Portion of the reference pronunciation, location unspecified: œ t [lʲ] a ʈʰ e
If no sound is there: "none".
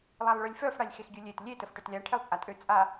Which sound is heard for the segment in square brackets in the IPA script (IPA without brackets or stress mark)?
lʲ